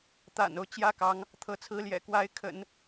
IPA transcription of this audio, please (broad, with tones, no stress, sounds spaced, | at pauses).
t̪ a̰˨˩ n o˦ ʊ̯ t͡ɕ j ä˥ k ɑ˧˥ ŋ | t̪ʰ ɤ˧˥ t͡sʰ ɹ̩˥ l j ɛ̰˨˩ k w a˧˥ ɪ̯ kʰ ə̰˨˩˦ n